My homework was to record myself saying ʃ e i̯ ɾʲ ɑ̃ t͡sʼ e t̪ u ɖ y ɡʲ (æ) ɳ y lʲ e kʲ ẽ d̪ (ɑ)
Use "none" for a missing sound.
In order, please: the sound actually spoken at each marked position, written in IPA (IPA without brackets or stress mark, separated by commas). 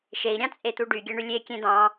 æ, ɑ̃